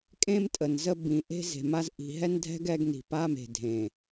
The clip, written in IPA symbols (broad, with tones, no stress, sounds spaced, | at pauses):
kʼ ẽ˦ m tʼ ə˨ n z ə˦ b ĩ˨ ʔ e̤˦ z e̤˨ m a˦ z ʔ i̤˨ ɦ ɛ˦ n dʱ ɛ̤˦ ɡ ɛ˦ ɡ n i̤˨ p a˦ m e̤˨ dʱ ẽ˨